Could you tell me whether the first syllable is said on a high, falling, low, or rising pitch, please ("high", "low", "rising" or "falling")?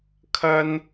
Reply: high